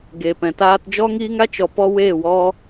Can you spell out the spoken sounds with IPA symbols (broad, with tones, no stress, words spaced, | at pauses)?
ɡe˨pɛ̃˨ taː˧td͡ʒɔ˦ŋiː˦ŋ a˦t͡ʃɔ˨pɔ˧ we˦˨wɔ˦